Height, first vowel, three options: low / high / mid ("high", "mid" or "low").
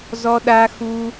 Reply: mid